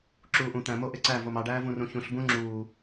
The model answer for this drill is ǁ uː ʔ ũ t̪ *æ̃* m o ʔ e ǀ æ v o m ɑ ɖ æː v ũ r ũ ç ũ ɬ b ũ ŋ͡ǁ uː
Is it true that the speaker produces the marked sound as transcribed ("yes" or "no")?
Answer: yes